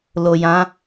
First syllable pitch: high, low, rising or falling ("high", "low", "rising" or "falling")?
low